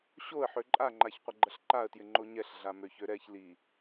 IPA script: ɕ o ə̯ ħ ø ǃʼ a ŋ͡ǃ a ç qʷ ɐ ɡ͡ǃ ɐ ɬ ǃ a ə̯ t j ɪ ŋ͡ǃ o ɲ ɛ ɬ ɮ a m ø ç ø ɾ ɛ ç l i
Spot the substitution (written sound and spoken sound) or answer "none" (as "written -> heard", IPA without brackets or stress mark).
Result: none